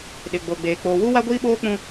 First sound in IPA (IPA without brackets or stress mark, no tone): ɗ